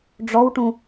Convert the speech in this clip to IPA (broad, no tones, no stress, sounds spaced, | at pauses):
ɖ͡ʐ ɔ w ʈ ũ